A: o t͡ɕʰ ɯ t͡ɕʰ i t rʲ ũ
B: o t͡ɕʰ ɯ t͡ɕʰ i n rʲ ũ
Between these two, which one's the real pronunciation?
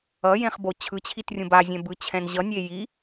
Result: A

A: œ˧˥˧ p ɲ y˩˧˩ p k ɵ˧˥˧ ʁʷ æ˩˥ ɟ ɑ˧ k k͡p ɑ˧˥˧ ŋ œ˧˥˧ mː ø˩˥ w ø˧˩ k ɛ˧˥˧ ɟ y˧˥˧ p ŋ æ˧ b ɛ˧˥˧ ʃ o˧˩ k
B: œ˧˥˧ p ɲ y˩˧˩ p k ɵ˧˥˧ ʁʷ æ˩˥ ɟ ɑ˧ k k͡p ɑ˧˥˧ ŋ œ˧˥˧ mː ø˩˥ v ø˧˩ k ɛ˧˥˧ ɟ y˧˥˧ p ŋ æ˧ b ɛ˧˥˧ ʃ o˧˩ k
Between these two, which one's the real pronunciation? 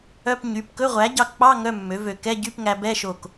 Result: B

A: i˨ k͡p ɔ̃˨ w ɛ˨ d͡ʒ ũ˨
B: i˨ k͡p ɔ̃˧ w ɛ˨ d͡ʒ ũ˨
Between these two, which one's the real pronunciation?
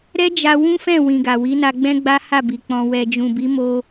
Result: A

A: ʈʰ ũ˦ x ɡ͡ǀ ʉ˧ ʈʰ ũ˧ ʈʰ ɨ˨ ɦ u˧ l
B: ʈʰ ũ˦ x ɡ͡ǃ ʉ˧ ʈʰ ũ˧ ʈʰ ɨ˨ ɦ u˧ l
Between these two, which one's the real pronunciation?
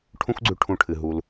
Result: A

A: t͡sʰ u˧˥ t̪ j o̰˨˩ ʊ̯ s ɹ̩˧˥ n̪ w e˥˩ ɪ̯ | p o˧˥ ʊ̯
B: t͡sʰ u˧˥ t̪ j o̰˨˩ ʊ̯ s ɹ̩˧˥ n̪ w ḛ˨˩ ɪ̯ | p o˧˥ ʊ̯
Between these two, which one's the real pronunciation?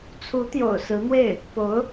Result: A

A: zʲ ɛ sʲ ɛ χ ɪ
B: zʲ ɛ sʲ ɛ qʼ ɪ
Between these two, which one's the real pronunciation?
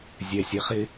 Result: A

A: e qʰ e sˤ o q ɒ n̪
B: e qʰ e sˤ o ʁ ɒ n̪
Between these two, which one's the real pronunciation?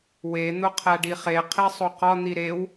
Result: A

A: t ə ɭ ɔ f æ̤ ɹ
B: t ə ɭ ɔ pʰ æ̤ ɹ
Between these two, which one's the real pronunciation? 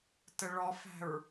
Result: A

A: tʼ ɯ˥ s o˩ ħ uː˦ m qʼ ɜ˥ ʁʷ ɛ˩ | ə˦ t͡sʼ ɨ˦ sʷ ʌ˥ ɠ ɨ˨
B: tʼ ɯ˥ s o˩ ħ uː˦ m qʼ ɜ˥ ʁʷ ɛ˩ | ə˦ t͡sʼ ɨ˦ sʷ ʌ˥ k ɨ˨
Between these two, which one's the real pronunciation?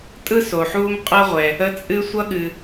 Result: A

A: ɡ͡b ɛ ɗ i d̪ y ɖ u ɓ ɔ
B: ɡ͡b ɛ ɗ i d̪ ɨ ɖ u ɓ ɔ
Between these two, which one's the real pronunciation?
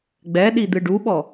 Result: B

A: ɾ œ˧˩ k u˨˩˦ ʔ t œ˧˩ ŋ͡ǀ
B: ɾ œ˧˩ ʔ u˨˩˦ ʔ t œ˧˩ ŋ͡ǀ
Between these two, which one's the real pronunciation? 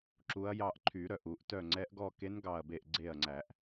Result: B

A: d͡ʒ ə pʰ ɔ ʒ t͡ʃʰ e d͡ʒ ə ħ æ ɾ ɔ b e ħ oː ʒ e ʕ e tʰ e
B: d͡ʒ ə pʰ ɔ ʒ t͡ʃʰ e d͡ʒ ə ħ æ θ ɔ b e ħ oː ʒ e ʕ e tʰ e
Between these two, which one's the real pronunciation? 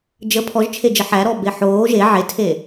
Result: A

